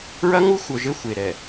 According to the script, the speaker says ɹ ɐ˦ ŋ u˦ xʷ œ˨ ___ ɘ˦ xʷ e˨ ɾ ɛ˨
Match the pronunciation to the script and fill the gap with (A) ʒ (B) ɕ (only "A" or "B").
A